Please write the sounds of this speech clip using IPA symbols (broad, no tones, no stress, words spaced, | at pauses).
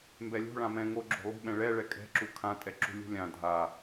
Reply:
mbɛlʲo̤ɭã mɛ̃ ŋo ɡ͡ǁo̤lˠṳɓɛ̃ ɭɛɭɛ kʼɛ̤ǁu kʰãtʼɛǁṳ lʲṳlʲã dʱa